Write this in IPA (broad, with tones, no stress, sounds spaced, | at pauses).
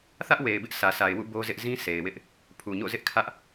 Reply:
θ ä˦ ʔ w e˨ ɪ̯ b ɪ˦ ʔ s ä˨ s a˨ ɪ̯ w ṵ˦˨ b o˦ z ɪ˦ ʔ z ĩ˦ s e˨ ɪ̯ w ɪ˦ ʔ | pʰ u˨ ɲ o̰˦˨ z ɪ˦ ʔ kʰ ä˦ ʔ